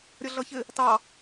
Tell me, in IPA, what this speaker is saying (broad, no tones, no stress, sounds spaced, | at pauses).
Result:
ɾʲ ʌ ɮ ʌ ç ɪ | t ɑ